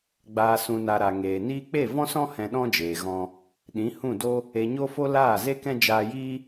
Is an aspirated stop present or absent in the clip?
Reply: absent